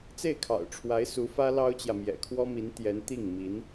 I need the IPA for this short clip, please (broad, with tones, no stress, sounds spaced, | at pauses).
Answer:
t͡s e˥˩ ɪ̯ kʰ ɑ̰˨˩ ʊ̯ ʈ͡ʂʰ w a˧˥ ɪ̯ s u˧˥ f ä˥ l ɑ˥ ʊ̯ t͡ɕ j ä˨ m j ɛ̰˨˩ kʰ w ɔ˥ m i˧˥ n t̪ j ɛ˧˥ n t̪ i˥˩ ŋ m i˧˥ n